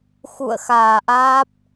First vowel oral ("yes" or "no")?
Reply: yes